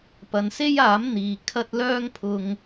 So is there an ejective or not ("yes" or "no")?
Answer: no